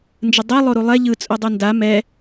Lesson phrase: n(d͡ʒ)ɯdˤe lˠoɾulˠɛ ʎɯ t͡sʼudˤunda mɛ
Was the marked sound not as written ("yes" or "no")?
no